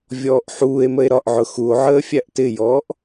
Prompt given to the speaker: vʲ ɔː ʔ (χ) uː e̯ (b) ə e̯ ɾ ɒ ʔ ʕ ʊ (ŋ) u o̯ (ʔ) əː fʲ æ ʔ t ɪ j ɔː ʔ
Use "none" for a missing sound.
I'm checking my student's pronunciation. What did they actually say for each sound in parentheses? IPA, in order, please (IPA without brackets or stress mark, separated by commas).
ħ, m, x, ʕ